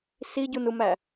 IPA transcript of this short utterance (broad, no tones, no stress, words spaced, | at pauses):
siɟunumæ